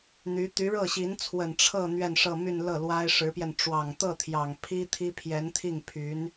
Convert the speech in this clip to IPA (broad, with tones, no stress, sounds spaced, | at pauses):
n̪ y˧˥ t̪ y˧˥ ɻ ɤ˥˩ ɕ i˧˥ n t͡sʰ w ə˨˩ n ʈ͡ʂʰ ɤ˥˧ n̪ ɥ ɛ˥˧ n ʂ ɤ˥˧ m y˥˧ n l ɤ˥˩ l w a˥ ɪ̯ ʂ ɻ̩˧˥ p j ɛ˧ n ʈ͡ʂ w ɑ˨˩ ŋ t̪ ɤ˥˩ t̪ʰ j ɑ˨˩ ŋ pʰ i˥ t̪ʰ i˥ pʰ j ɛ˧˥ n t̪ʰ i˥˩ ŋ pʰ y˧˥ n